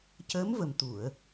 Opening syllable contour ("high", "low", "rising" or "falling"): rising